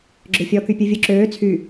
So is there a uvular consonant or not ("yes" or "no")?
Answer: no